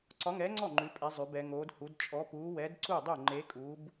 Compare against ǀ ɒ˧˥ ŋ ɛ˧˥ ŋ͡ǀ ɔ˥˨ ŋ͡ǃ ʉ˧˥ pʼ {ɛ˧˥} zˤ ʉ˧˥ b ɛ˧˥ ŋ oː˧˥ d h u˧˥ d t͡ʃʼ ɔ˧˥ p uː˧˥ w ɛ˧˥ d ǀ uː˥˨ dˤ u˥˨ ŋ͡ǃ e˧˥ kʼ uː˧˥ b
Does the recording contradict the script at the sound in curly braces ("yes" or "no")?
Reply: no